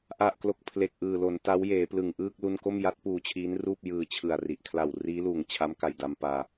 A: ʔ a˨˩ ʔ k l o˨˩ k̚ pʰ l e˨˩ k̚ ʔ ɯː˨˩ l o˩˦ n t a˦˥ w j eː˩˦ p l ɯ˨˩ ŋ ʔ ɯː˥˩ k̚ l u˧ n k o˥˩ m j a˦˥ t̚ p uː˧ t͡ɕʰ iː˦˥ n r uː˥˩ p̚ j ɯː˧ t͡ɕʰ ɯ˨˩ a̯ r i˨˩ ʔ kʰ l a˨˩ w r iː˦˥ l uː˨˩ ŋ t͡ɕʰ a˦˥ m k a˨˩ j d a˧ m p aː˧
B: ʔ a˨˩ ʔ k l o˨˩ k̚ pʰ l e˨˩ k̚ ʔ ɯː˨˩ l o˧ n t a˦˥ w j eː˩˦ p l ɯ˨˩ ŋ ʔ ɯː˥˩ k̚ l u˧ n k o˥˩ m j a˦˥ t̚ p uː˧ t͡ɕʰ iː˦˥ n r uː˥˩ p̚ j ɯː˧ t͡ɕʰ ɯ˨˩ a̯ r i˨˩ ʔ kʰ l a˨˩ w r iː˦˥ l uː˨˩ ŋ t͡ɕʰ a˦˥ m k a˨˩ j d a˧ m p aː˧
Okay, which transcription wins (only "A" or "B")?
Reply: A